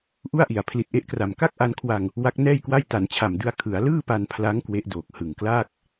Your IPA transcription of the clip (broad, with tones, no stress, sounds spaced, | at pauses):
ʔ u˥˩ a̯ ʔ i˨˩ a̯ pʰ l i˨˩ t̚ ʔ e˦˥ ʔ k r a˨˩ m k a˥˩ k̚ ʔ a˧ n kʰ w a˧ ŋ | w a˦˥ k̚ n ɛː˥˩ j k w a˥˩ j t a˩˦ n t͡ɕʰ a˨˩ m d ɯ˧ a̯ kʰ ɯ˩˦ a̯ l ɯː˥˩ p a˧ n pʰ l a˦˥ ŋ k w e˦˥ ʔ d oː˨˩ k̚ h ɯ˨˩ ŋ k l aː˥˩ k̚